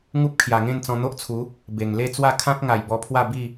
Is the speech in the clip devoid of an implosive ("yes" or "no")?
yes